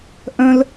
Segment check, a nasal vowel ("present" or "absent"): present